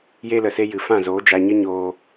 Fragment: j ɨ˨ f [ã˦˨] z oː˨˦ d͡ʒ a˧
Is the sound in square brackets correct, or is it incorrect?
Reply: correct